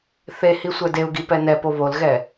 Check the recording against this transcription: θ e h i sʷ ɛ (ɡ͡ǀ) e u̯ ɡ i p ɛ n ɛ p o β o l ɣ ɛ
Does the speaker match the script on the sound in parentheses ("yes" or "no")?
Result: no